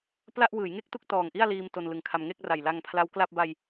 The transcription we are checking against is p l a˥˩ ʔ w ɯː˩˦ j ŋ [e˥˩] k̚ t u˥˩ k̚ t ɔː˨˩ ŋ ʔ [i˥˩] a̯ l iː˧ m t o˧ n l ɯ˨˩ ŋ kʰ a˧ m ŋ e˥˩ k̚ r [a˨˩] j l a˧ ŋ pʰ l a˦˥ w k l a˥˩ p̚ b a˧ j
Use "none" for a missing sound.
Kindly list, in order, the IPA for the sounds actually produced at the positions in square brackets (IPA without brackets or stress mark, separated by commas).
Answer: e˥˩, i˥˩, a˨˩